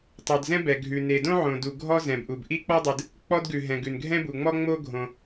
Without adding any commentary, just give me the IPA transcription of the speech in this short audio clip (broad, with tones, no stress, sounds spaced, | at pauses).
tˤ o˩ d z ɛ̃˥ b ɛ˩ ɡʱ ʉ˩ n e˩ d õ˥ ʕ õ˩ d u˩ ɡʱ ɔ˥ z ɛ̃˩ b ʔ u˩ b ʔ i˥ k͡p ɔ˥ dˤ ɨ˩ d | k͡p ɔ˥ d ɡ ʉ˩ ɦ ɛ̃˩ ɡ ʉ˩ n ɡʱ ɛ̃˥ b u˩ ŋ͡m ɔ˥ ŋ͡m o˥ ɡʱ õ˩